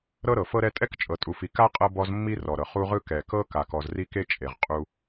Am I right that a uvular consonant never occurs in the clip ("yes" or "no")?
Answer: no